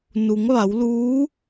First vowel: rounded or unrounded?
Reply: rounded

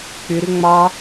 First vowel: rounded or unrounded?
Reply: rounded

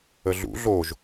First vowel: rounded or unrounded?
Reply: unrounded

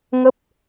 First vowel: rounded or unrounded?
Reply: unrounded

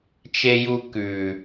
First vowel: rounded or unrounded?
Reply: unrounded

